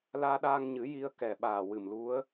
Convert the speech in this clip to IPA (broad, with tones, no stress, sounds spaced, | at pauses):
l aː˧ ɗ aː˧ ŋ ɲ ɨ˨˩˦ j i˧ ə̯ k ɛ˨˩ ɓ aː˨˩ w ɨ˨˩ m l u˧˥ ə̯